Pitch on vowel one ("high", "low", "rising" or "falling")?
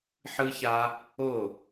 high